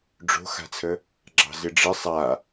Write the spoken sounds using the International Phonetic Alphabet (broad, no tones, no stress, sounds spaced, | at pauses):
ɖ͡ʐ o̤ x a̤ t͡sʰ ə | ɡ͡ǁ ɑ̤ z ɨ ɖ͡ʐ ɪ sˤ a